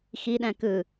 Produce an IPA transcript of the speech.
x i ɗ æ̃ k ɯ

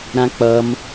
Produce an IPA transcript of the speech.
ɾ ã k͡p ʌ m

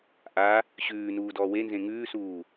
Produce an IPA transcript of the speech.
ʔ a | ɕ ʉː n uː d ɔː w e n z ẽ ŋ ʉː s uː

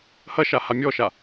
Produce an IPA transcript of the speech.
h ɐ ʃ a h a mʲ ɔ ʃ a

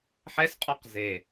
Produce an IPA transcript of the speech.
ħ ɛ s qʼ ɔ q z e

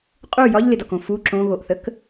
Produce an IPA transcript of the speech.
qʼ u j ɒ ʎ l ɪ d ɒ k õ f u ǁ õ ɣ o ʔ θ ə k

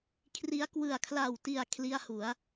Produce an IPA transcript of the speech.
kʰ r i˦˥ a̯ k w ɯ˨˩ a̯ kʰ l a˨˩ w t i˨˩ a̯ kʰ l i˥˩ a̯ h u˩˦ a̯

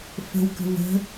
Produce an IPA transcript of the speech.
f ə̤ w k ə̤ v ə̤

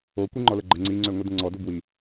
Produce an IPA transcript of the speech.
o kʷ i ŋ͡ǃ ɔ l ə ɡ͡ǃ ə ŋ͡ǀ i ŋ͡ǀ ø ŋʷ i d ə̃ ŋ͡ǀ ɔ d o b w i

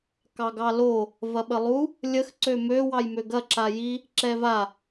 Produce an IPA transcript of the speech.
k ɑ ɡ ɑ l o | v ɐ ɓ ə lˠ u | lʲ ə x ǀ ø m ø w ɑ j m ø ɡ ɐ ǁ a j i | ǁ ɛ v a

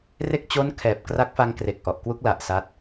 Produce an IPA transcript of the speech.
r e˥˩ k̚ t͡ɕ o˦˥ n kʰ ɛː˨˩ p̚ k r a˦˥ k̚ f a˧ ŋ k r e˨˩ k̚ ʔ ɔ˨˩ ʔ k w u˦˥ k̚ l a˨˩ ʔ s a˦˥ t̚

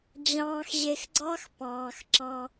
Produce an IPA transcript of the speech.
d͡ʑ ɑ̃ː˨ x ʑ e˨ x ɡ͡ǀ ɑ˦ x p ɑ̃ː˨ x ǁ ɑ̃˦

